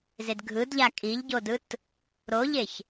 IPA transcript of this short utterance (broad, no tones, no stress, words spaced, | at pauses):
zedɡʱɯdʎa kʼiʎɟodɯt | ɾoʎeç